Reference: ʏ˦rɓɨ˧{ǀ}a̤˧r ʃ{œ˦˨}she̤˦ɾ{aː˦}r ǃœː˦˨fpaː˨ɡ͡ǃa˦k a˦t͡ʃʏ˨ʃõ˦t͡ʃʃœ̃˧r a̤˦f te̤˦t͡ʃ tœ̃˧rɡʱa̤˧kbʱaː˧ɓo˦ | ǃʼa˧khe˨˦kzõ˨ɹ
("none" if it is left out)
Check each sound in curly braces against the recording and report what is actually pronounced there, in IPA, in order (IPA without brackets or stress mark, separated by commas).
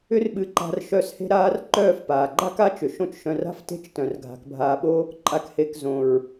ǃ, œ˦˨, aː˦